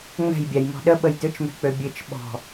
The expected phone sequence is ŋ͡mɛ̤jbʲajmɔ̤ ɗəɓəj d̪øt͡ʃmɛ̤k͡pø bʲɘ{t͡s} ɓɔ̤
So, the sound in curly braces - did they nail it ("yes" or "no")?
no